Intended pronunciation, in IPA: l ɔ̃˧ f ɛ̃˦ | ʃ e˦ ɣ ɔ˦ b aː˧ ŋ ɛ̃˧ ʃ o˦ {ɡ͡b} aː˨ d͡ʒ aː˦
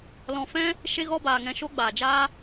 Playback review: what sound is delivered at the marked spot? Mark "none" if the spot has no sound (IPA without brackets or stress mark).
ɡ͡b